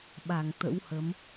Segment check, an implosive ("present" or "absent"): present